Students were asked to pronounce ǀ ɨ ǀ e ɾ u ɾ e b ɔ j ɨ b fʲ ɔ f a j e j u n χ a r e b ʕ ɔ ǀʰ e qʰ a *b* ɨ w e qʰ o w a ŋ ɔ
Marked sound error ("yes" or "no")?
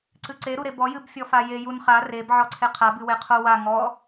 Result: no